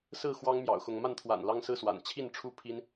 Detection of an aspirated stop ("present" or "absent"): present